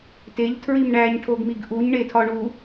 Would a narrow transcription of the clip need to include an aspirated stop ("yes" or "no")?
yes